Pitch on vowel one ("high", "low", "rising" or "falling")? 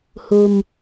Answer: low